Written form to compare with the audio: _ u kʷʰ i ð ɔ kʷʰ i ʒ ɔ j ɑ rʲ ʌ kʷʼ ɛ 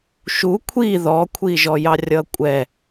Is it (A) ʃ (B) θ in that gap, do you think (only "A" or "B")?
A